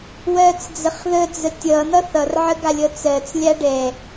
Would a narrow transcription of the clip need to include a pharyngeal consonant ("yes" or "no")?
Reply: yes